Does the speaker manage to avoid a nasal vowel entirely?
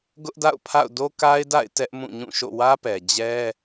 no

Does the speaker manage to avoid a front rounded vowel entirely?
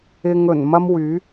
no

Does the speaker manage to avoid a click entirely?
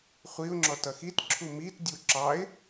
no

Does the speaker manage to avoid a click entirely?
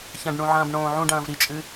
yes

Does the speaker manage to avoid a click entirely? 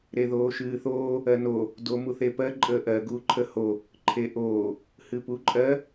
no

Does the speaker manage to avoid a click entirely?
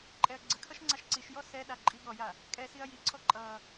no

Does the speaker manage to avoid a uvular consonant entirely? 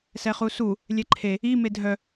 no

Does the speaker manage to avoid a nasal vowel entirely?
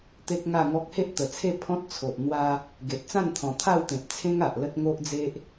no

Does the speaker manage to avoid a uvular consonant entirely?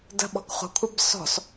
no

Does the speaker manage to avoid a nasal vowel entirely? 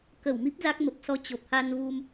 yes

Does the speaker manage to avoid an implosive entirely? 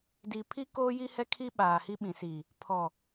no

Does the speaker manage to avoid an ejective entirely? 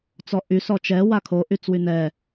yes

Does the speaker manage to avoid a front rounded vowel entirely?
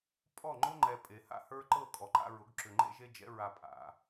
no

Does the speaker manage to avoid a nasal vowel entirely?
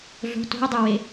yes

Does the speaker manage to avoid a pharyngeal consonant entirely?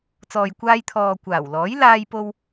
yes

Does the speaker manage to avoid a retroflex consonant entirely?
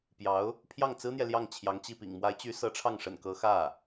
no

